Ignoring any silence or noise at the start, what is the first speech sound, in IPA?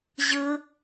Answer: ʑ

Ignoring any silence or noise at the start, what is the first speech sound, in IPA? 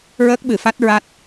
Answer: ɹ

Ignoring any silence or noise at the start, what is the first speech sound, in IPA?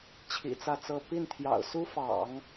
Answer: t͡ɕʰ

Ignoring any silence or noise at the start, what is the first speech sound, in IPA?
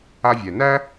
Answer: a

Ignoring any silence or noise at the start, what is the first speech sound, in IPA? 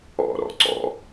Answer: ɔ̰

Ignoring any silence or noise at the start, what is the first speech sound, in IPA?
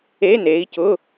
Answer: e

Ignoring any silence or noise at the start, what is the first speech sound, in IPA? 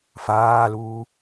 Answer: f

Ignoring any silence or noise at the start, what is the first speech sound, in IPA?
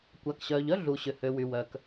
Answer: kʷ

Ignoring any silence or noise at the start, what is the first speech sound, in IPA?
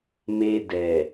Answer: m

